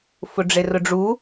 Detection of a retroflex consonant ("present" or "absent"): present